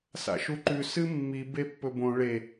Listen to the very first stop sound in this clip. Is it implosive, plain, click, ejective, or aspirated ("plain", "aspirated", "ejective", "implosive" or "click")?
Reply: click